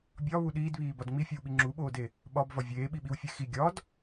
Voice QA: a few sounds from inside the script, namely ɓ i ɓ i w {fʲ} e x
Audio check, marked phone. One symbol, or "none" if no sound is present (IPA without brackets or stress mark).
fʲ